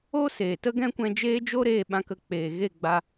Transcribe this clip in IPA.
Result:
o˦ s eː˨ t ə˦ ɡ ɛ̃˦ kʷ ɛ̃˧ d͡ʒ eː˦ d͡ʒ o˦ ɾ eː˧ ɓ ã˧ k ə˧ k͡p eː˨ ɣ e˦˨ ɡ͡b a˧

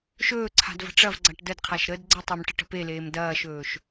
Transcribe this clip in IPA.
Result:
ʃ ɵː ǀʰ a̤ d v ə̤ ʈ͡ʂ ɐ v ɡ͡ǀ a ʈ d ə d qʰ a ʃ ɾ ə d ɡ͡ǀ ə tˤ e m ʈ ə ʈ ə̤ p e l eː m d ɐː ʃ ɵː ʃ

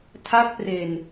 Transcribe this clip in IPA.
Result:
tʰ a˦˥ k̚ p r e˨˩ n

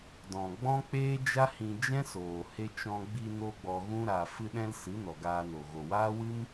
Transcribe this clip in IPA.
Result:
d ɔ̃˨ ɡ͡b ɔ̃˦ k͡p eː˦ d͡ʒ a˦ h ĩ˧ d͡ʒ ɛ̃˦ s oː˨ h e˧ t͡ʃ ɔ̃˧ ɡ͡b i˧ n o˦ ɡ͡b ɔ˧ ɣ ũ˦ ɾ a˧ f ɨ˦ ɗ ɛ̃˦ l s ɨ˨˦ n ɔ˨ ɡ aː˧ n o˨ ɣ o˨ w aː˦ w ɨ˦ m

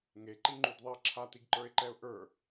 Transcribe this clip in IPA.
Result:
ŋ e ǃ i ŋ͡ǃ y d ðˤ i ə̯ ǁʰ a t̪ i ɡ ǃ ə˞ ɪ̯ ǃ ɛ ʊ̯ ʔ ə˞

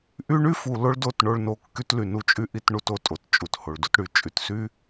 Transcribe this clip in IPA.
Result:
ʔ y˦ ɳ y˦ f u˨ l o˦ ɭ d o˦˨ t ɳ o˦ ɭ n o˦ kː y˦ t l y˨ n u˦ t͡ʃʼ y˦ ʔ i˦ t ɳ u˦ t o˨ tʼ o˨ t t͡ʃʼ u˨ t h o˨ ɭ d u˦ t ɽ y˨ t͡ʃʼ y˨ t s y˦

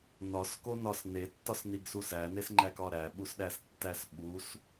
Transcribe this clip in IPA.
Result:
n ɒ s k o n ɒ s n e tː ɒ s n i ɡ s u s æ n e s ŋ͡ǃ æ k ɒ ɾ æ ɓ u s ɗ æ s tː æ s ɓ u s

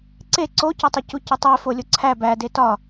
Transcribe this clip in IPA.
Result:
ǀ e ǀ o c ɒ tˤ o c u c i tˤ e f o lʲ o ǀʰ æ b æ d e t ɒ

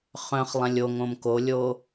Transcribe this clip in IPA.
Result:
χ œ̃ χ lˠ ɛ̃ lʲ o ŋ õ m k o lʲ o

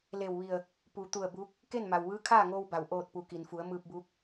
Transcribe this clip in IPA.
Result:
l e˧˩ w ʋ i˧˩ ə̯ | p u˩ t̪ u˧˩ ə̯ b uː˧˥ k̚ | k e˥˨ n m a˩ w ʋ ɯː˧˥ kʰ aː˥˨ ŋ oː˧ w b a˩ w ʔ oː˧˩ t̚ p u˩ k i˩ n f u˩˧ ə̯ m ɯː˧ p̚ b uː˧˥ k̚

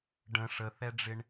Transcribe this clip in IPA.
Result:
ɖ ə̃ ʂ ə θ ɛ ɖ͡ʐ ɪ ɳ

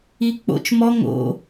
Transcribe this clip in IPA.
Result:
i k͡p o̰ t͡ʃ m ɔ ŋ o̰

